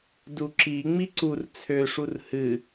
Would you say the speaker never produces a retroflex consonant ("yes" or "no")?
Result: no